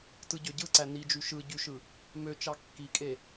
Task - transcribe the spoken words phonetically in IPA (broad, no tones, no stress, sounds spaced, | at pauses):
t ɯ ɟ ø ɟ ɯ ǀ æ n i d͡ʒ y ʃ ɯ ɟ y ʃ ɯ | m ø t͡ʃ ɑ kː i kʼ e